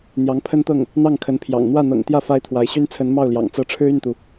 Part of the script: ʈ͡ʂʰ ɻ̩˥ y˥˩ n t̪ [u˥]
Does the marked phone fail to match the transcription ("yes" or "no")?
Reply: yes